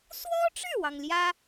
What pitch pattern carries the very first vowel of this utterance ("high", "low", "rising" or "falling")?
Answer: high